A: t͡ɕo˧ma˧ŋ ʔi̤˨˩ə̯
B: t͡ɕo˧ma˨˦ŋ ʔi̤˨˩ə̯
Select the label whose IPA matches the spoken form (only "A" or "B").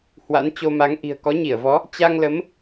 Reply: B